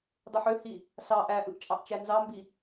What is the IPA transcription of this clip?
dˤ ɯ ħ ø h i | s ɑ ʔ æ ʔ ɯ ʔ t͡ʃʼ ɑ ʔ t͡ʃ æ n z ɑ m b i

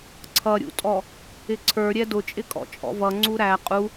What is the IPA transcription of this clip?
ǀʰ ʌ ɾʲ ṵ tʼ ɔ | ɪ ǀʰ ə˞ ɾʲ ɛ d ʊ t͡ʃʼ ɪ kʼ ɔ̰ t͡ʃʼ ɔ̰ v ʌ ŋ͡ǀ u ɾ æ qʼ u

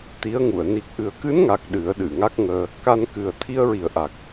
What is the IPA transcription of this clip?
t̪ i˧˥ ə̯ ŋ u˨˩˨ ə̯ n i˨˩ k̚ ʔ ɨ˨˩ ə̯ k ɨ˧˥ n ŋ a˨˩ k̚ ɗ ɨ˨˩˦ ə̯ ɗ ɨ˨˩˨ ŋ a˦˥ k̚ ŋ əː˧ | k a˧ n k ɨ˨˩ ə̯ t̪ʰ i˧ ə̯ ɹ i˨˩ ə̯ ʔ a˨˩ k̚

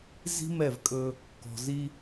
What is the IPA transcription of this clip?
z i̤˦ m ɛ˦˨ v kʼ ɵ˦ | k ɔ̤˨ z i˦

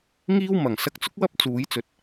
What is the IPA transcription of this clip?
ŋ iː˥ w m ɐ˨˩ ŋ s ɐ˥ k̚ t͡s ʊ˥ k̚ w ɐ˥ p̚ t͡s uː˨˥ j t͡s ɵ˨ t̚

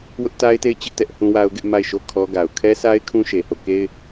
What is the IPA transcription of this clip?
w ʊ˦ ʔ t a˦ ɪ̯ t e˦˨ ɪ̯ t͡ɕ ɪ˦ ʔ t ɛ˦ ʔ h ũ˦ w a˦ ʊ̯ ɡ ɪ˦ ʔ m a˦˨ ɪ̯ ʃ o˦˨ kʰ ɔ˦ ɡ a˨ ʊ̯ kʰ ɛ˦ s a˦ ɪ̯ kʰ ũ˦ ʃ e˨ h o˦˨ k e˦ ɪ̯

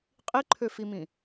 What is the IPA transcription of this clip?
qʼ i ǃʰ ø f i m ĩ

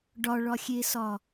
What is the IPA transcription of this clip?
ɖ ɒ ɭ ɒ xʲ e s ɒ

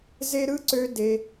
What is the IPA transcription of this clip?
z e˦ ɾ ɯ˥ ǀ ø˥ d e˦

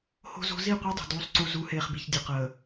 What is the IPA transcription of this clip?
h o̤˦ z o̤˦ z i˦˨ qʷ e˦ dˤ o̤˨ d uː˦ sˤ ǀ u˦ z u˨˦ h eː˨ χ b i˨ ç dʲ ə˨ q əː˨

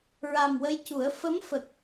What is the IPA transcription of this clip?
ɹ a˨˩ m w ə˧ j c u˨˩˦ ə̯ f ə˧˥ m f ə˨˩ k̚

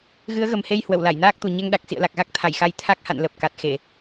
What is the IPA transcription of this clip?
ɣ ɨ˨˦ ə̯ ɣ ə˨˩ m h e˧ j h w ə˧˩ w l a˧˩ j n aː˦˥ k̚ t̪ u˨˩ ɲ ɛ˧ ŋ ɗ a˨˩ k̚ s ḭ˧˨ ə̯ l a˨˩ k̚ ɣ a˦˥ k̚ t̪ʰ a˧˩ j x a˨˦ j t̪ʰ a˦˥ k̚ h a̰˧˨ n l ə˨˩ p̚ k a˨˩ t̚ x e˧˩˨

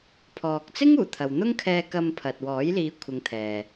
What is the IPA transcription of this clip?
pʰ ɔː˨ k̚ t͡s ɪ˥ ŋ uː˨˩ t̪ʰ ɐ˨ w n̪ ʊ˥ ŋ kʰ ɛː˧ k ɐ˧ m pʰ ɐ˨ t̚ w ɔː˨˥ j l iː˨˧ kʷʰ ɪ˨˧ ŋ t̪ʰ ɛː˨

